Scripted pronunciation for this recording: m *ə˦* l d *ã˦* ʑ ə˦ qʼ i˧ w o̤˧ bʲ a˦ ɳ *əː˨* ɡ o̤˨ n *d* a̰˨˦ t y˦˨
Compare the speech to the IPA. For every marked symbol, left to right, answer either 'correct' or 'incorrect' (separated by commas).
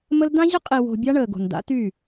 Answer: correct, correct, correct, correct